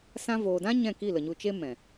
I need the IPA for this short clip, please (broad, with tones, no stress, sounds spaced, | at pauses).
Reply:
s ã˧ v oː˨ d ã˦ ɲ ɛ̃˦˨ k i˦˨ l ə˨ ɲ u˧ t͡ʃ e˦ m ɛ̃˨